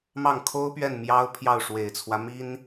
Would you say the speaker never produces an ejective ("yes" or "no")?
yes